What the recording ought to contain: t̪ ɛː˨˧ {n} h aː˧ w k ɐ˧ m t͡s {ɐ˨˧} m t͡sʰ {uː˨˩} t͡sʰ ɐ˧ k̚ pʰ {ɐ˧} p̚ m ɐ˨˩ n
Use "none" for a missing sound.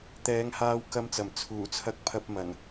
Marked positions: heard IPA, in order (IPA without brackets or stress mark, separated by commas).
ŋ, ɐ˨˩, uː˨˩, ɐ˧